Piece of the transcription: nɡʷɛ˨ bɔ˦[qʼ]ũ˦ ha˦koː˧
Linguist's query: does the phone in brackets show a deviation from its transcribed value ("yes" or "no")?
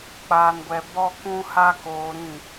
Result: yes